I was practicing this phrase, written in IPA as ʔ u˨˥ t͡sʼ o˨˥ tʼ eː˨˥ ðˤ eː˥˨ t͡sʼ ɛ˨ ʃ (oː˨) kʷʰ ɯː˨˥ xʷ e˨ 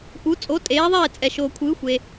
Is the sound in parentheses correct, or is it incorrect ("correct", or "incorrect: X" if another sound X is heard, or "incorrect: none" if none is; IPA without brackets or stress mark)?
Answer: correct